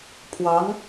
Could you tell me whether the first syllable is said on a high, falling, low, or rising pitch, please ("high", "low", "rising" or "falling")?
rising